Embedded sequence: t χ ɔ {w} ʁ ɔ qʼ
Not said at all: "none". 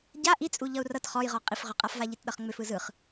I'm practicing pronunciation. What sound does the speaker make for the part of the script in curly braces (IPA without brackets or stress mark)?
j